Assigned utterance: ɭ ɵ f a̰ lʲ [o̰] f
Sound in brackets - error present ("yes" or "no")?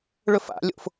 no